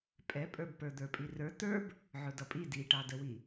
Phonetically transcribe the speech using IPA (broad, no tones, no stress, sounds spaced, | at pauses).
pʼ ɛ pʼ ə˞ b p ə˞ d̪ ə˞ pʼ i r ə˞ t̪ ə˞ b | ʕ ʊ d ʌ pʼ i d i ʈ ɑ d ə w i